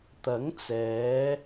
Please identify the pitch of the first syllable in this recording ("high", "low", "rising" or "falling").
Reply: rising